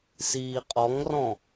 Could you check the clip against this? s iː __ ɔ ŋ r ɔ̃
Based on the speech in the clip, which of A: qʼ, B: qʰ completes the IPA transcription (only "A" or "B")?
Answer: A